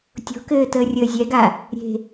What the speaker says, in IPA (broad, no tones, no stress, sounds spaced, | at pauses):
tʲ o̤ k ɘː t əː rʲ əː zʲ ɛ ɡ a | ɾʲ e̤